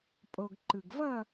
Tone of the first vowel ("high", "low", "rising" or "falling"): low